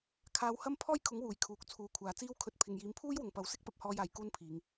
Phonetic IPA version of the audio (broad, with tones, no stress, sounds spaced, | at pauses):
kʰ aː˧ w h ɐ˥ m pʰ ɔː˥ j kʰ ʊ˨˥ ŋ w uː˨˩ j kʰ uː˨ k̚ t͡sʰ uː˨˧ kʷʰ aː˨ t͡s iː˥ w kʰ ɵ˧ t̚ pʰ ɪ˨ ŋ j iː˨˧ m pʰ uː˥ j w ʊ˨ ŋ p ɐ˨˧ w s ɪ˥ k̚ p ɐ˨ p̚ h ɔː˧ j aː˨˩ j k uː˧ n pʰ iː˨˧ ŋ